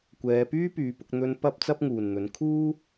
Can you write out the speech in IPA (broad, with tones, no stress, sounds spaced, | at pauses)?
kʷ ɛː˨˧ p yː˥ p yː˨˥ p ʊ˧ k̚ n̪ ɵ˧ n p ɐ˥ p̚ t͡s ɐ˥ p̚ ŋ uː˨˩ n n̪ ɵ˨˥ n kʰ uː˥